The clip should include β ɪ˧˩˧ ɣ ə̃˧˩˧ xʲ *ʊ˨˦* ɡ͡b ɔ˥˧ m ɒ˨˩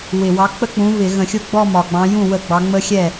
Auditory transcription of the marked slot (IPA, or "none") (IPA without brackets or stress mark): ʊ˥˩